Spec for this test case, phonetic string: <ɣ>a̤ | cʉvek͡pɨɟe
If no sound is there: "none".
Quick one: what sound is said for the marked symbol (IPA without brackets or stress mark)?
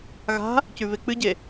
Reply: ɣ